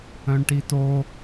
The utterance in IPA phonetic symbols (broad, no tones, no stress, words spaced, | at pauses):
œ̃ɳʈito